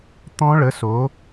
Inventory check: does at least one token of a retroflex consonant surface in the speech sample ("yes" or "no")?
yes